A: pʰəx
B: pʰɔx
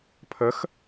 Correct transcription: A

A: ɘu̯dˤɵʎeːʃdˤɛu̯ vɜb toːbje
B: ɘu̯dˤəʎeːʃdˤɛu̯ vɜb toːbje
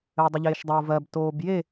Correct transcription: B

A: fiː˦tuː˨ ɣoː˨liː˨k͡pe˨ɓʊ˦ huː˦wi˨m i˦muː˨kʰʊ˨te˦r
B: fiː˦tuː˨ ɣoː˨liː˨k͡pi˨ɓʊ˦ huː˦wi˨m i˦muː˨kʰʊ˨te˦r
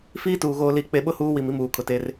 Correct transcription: A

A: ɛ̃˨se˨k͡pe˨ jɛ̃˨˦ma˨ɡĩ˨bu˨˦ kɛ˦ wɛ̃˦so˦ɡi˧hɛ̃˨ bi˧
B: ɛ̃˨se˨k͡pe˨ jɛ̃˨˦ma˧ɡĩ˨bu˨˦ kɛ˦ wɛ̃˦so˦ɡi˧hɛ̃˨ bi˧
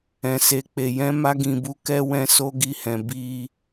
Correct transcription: B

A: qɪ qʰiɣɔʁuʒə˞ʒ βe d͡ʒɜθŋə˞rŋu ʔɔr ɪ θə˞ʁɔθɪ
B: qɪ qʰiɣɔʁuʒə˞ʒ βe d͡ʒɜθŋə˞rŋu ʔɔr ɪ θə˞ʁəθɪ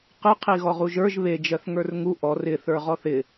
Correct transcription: A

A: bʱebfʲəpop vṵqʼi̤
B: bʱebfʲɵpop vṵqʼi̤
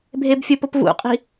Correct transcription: B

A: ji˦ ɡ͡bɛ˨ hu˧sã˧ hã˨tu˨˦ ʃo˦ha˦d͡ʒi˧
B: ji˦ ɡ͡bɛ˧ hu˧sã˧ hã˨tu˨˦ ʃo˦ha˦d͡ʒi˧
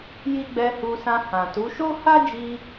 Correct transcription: B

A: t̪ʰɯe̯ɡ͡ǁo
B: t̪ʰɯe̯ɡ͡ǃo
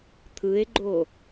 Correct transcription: B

